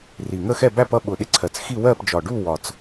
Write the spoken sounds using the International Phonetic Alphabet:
r i˨˩ ŋ ə˥˧ x ɛ˥˧ b æ˥˧ p ʌ˥˧ ɓ ʊ˨˩ ɗ ɪ˥˧ ǀʰ ɜ˨˩ t͡s x i˥˧ w ɜ˥˧ p d͡ʒ ɒ˨˩ ɖ u˥˧ w ɒ˨˩ t͡s

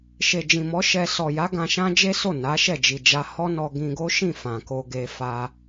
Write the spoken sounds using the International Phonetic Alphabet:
ʃ e˨ d͡ʒ ĩ˨ m ɔ˨˦ ʃ ɛ˧ s ɔ˨ j a˨˦ ɡ ã˧ ʃ ã˦ d͡ʒ e˦ s o˦˨ n a˨˦ ʃ ɛ˦˨ d͡ʒ i˨ d͡ʒ a˧ h ɔ˦ n ɔ˧ ɡ ĩ˧ ɡ o˦ ʃ ĩ˦˨ f ã˨ k o˧ ɡ e˧ f a˧

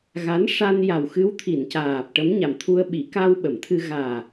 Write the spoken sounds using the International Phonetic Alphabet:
ɣ a˧˥ n ʂ a˧ n j a˨˩ w x ɨ˧˥ w t̪ʰ i˨˩˨ n c aː˨˩ p̚ ʈ ə˧˥ m ɲ a˨˩ m t̪ʰ u˧ ə̯ ɓ i˨˩˦ k a˧ w ɓ ə˨˩˨ m t̪ʰ ɨ˧ ɣ aː˨˩

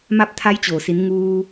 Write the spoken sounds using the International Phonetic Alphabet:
m a˥˨ p̚ t̪ʰ a˧˥ j t͡ɕ oː˩ s i˩˧ n ŋ uː˧

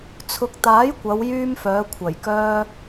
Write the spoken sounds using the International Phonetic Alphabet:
t͡sʰ ʊ˨˥ k̚ t̪ aː˨˥ j kʷ ɐ˨˧ w j yː˧ m f œː˨˧ kʷʰ ɐ˨˩ j k œː˧

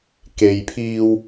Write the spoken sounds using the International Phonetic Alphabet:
k e˨ j pʰ iː˧ w

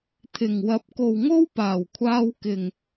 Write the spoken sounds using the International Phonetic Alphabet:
t̪ʰ ɪ˨˩ ŋ w ɐ˨˥ p̚ k o˨ w ŋ o˥ w p aː˨˩ w kʷʰ aː˧ w k ɪ˨˩ ŋ

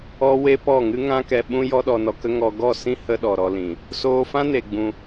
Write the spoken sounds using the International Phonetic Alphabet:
ɔ˦ w e˦ p ɔ˦˨ ŋ ɨ˦ ŋ ã˦ k ɛ˧ ɓ ũ˦ j ɔ˦ ɗ ɔ˧ n ɔ˧ k ə˦ ŋ ɔ˧ ɡ ɔ˦˨ s ĩ˦ h ə˦ ɗ ɔ˨ ɾ ɔ˧ l ĩ˨ | s oː˧ f ã˦ n e˧ ɡ͡b ũ˧

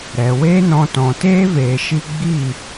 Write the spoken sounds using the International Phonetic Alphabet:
ɾ ɛ˨ w e˦ n ɔ̃˧ t ɔ̃˨ t eː˦ v eː˧ ʃ i˦ ɡ͡b i˦˨

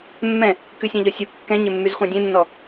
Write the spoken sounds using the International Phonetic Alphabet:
mː ɛ̃ | k ʉ sʲ ɑ̃ ʎ ɔ sʲ u kː ɛ̃ ɲ e mː y z χʷ ɑ̃ dʲ ẽ nː ɔ

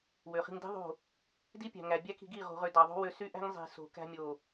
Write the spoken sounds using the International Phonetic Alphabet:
w ø˨ χ i̤˧ ŋ d i̤˦ ðˤ o̤˦˨ | d i˦ pʲ æ̤˨ ŋ æ˨ bʲ æ˦ k i̤˧ ɡ i˦˨ ʁ o̤˦ ʁ ø˦ d ɑ˨ ðˤ o̤˦ w ø˧ s y˦ ʔ æ̤˦ ŋ zˤ i̤˨ s o̤˨ k æ̤˧ mʲ o˨

